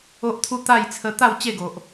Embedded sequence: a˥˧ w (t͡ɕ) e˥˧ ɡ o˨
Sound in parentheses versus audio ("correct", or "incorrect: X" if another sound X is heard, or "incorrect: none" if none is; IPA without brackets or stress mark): correct